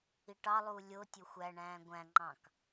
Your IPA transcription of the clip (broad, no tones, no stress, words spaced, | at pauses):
iʈɑlˠuː lʲo tʲoxʷæɳæ̃ː ɡʷæ̃ŋ͡ǃɑ̃k